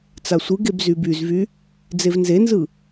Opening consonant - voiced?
no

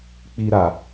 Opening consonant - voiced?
no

